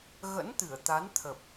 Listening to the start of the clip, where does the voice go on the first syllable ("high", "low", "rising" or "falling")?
rising